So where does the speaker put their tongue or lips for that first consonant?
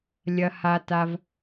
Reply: tongue tip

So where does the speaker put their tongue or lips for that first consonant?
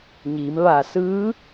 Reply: palate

